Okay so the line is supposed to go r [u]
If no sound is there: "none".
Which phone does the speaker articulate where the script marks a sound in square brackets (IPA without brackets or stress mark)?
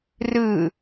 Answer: ɯ